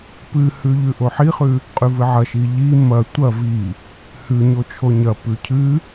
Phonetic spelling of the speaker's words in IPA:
p ɨ h ʉ ʎ ʉ ʔ o ħ i χ ʉ | qʼ ʉ v ɨ ʕ ɐ ʃ i ʎ i m ɐ tʷ ɐ v i | h ʉ ɲ o t͡ʃʰ o ɲ ɐ p ʉ cʰ ɨ

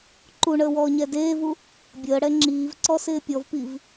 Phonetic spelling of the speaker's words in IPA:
ǃ u ɳ əː w ɔː ɲ ɛ d eː v u | bʲ əː ɽ ɛ ŋ͡ǁ iː v ǀ ɔ s ɪː pʲ ɔ v p i v

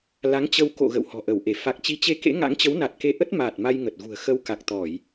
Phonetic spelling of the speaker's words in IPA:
l a˨˦ ŋ t͡ɕ ə˧ w k o̰˧˨ ɣ ə̰˧˨ w h ɔ̤˨˩ ʔ ə˧˩ w ʔ e˧˩ f a˨˩ k̚ t͡ɕ i˨˦ t͡ɕ e˧ k ḛ˧˥ ŋ a̰˧˥ ŋ t͡ɕ ə˨˦ w n a˨˩ t̚ k e˨˦ ʔ ə˦˥ t̚ m aː˨˩ t̚ m a˧ j ŋ ə˨˩ t̚ ɣ ṳ˨˩ ə̯ x ə˧ w k a˨˩ k̚ t̪ ɔ˧˩˨ j

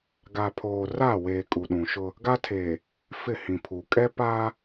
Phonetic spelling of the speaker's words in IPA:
ɡ a˨ pʰ oː˨ r a˦˨ w eː˨ kʼ u˨ ɗ ũ˨ ʃ ʊ˦ | ɡ a˦ tʰ eː˨ | f ɪ˦˨ h ĩ˨ pʰ uː˨ kʼ ɛ˦ p aː˦

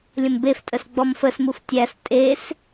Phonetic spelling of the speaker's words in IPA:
lʲ ə̃ m b e f tʼ ə s ɡ͡b ɔ m f ə s m u f tʲ æ s tʼ e s

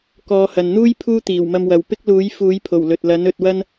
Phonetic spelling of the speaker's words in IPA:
k ɔː˨˧ h ɐ˨ n n̪ uː˥ j pʰ uː˥ t̪ iː˨˩ w m ɐ˧ m w ɐ˨ w p ɪ˥ k̚ l uː˨˥ j f uː˨˥ j pʰ o˨˩ w l ɵ˨ t̚ l ɐ˨˥ n ɵ˧ t̚ w ɐ˥ n

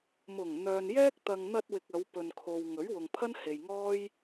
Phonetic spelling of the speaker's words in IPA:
m ʊ˨˩ ŋ n̪ œː˨ n j ɛː˥ k̚ t̪ ɐ˨ ŋ n̪ ɐ˧ t̚ w ɪ˨ k̚ ɐ˨˧ w p ɵ˨ n kʰ o˨ w ŋ ɵ˨˥ ɥ w ʊ˨ ŋ pʰ ɐ˥ n h e˨ j ŋ ɔː˥ j

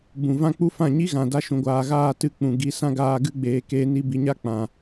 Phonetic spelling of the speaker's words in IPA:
b ũ˨ v ã˦ k͡p u˦ f ã˦˨ ɲ i˦ ɣ ã˨ d a˧ ʃ ũ˨ ɡʷ aː˨ ɣ aː˦˨ t ɨ˧ k͡p ũ˨ ɡ i˨˦ s ã˦ ɡ aː˧ ɡ ɨ˧ ɡ͡b eː˨ k eː˧ n i˧ b i˨ ɲ a˦ k͡p ã˨

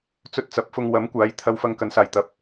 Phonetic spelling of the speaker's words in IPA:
t͡s ɵ˧ t̚ t͡s ɐ˨ p̚ f ʊ˧ ŋ w ɐ˨˥ m kʷ aː˨˥ j t̪ʰ ɐ˧ w f ɐ˧ ŋ k ɐ˨˧ n s aː˨ j t̪ ɐ˨ p̚

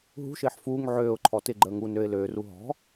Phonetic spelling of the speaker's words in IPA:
ɦ ṳ ʃ ɪː ħ f uː ŋ ʕ øː ʊ̯ ǃʰ ɔ t ɪ ɡ͡ǃ əː ŋ u n ø ɪ̯ l øː r u ɦ ɔ̤

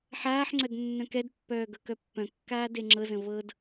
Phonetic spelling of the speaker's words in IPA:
ħ aː ħ ŋ͡ǀ œ d nː œ̃ k ɛ d pː œː ɡ ɤ k œ pː œ̃ kː aː d e ŋ͡ǁ ɤ z ə̃ v ɤ d

